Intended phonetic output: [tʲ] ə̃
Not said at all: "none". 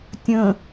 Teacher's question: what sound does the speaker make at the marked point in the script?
tʲ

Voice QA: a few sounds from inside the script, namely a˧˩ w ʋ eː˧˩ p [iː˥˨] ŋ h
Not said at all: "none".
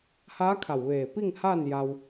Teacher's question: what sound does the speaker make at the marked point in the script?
i˥˨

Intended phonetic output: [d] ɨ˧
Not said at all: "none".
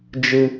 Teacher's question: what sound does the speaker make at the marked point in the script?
d͡ʒ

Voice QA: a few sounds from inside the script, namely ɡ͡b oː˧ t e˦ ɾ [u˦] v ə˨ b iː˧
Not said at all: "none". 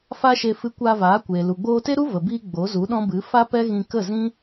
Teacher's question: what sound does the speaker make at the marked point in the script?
u˦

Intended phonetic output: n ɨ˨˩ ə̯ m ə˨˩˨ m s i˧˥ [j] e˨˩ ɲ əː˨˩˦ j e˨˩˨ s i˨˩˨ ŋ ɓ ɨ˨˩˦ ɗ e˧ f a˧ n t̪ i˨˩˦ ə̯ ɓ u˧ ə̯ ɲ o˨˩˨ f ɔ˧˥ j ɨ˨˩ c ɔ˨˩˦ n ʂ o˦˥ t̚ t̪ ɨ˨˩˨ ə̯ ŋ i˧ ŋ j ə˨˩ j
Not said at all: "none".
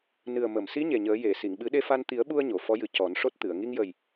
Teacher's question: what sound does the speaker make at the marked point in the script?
ɲ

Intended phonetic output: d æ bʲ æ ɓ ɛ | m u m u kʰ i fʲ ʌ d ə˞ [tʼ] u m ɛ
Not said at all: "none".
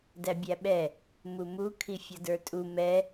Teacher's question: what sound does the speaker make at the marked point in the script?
tʼ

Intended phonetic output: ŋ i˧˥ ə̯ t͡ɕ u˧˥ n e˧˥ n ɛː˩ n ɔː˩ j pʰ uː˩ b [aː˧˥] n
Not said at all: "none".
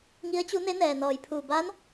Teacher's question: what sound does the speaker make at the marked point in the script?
aː˧˥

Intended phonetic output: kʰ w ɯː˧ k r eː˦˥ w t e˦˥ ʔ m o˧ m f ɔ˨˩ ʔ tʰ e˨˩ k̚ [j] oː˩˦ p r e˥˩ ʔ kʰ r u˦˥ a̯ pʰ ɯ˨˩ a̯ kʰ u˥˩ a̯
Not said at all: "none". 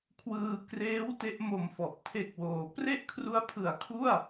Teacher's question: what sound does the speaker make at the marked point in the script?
w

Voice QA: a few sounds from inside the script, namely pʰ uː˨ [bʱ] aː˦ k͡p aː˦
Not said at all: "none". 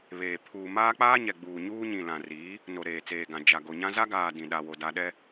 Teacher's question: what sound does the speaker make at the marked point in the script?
m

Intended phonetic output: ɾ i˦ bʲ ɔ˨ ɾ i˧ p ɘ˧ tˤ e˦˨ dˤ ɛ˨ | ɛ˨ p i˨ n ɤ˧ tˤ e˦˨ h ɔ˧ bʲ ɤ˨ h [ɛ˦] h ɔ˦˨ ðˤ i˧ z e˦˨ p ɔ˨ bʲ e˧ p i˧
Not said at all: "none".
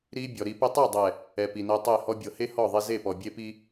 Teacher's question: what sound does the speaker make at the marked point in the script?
e˦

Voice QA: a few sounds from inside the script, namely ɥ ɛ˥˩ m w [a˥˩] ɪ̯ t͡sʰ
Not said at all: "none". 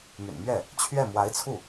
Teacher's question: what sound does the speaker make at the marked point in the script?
a˧˥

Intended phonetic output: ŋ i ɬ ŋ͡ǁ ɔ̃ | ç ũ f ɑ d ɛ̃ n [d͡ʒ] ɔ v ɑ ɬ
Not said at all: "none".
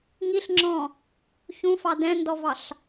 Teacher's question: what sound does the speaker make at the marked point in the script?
d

